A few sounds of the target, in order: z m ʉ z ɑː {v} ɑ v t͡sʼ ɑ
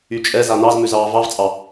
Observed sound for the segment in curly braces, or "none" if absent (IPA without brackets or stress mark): v